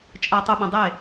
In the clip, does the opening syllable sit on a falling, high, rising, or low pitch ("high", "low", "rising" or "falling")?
low